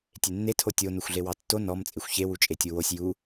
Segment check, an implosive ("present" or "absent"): absent